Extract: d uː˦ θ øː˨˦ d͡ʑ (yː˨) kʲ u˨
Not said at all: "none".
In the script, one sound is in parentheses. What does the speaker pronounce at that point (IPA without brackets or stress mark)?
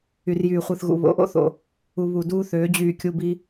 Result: yː˨